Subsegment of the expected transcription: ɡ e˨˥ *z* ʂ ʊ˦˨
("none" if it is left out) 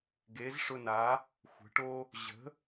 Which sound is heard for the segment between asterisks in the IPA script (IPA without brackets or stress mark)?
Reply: z